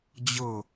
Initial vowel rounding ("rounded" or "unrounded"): unrounded